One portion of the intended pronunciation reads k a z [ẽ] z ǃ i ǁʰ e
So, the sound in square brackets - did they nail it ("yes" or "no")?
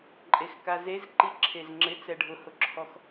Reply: no